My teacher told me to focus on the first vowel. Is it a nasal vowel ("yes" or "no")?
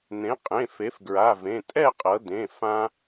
yes